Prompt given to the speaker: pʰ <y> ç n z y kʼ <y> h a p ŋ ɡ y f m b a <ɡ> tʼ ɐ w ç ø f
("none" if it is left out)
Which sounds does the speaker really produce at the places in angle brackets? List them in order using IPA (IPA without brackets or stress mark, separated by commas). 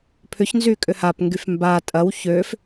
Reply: ʏ, ʏ, none